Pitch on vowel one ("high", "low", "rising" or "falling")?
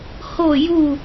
falling